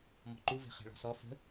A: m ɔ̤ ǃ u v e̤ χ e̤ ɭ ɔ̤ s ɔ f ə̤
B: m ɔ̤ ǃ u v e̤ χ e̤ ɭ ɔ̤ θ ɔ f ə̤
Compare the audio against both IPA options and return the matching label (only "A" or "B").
A